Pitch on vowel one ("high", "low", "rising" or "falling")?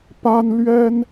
high